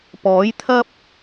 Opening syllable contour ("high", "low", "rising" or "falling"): rising